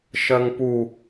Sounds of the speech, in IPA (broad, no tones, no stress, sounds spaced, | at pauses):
ʃ ɜ ŋ p u